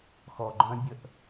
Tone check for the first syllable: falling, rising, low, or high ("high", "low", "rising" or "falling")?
low